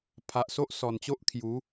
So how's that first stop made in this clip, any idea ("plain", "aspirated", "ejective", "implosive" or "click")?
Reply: aspirated